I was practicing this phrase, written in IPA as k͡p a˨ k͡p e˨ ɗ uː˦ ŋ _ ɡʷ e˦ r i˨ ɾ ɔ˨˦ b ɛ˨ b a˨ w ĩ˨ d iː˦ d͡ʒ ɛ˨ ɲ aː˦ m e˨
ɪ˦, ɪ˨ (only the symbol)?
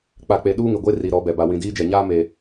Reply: ɪ˨